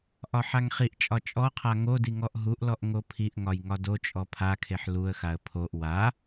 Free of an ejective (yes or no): no